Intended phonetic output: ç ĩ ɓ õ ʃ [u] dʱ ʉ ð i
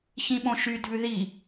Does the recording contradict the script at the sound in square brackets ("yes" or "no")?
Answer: yes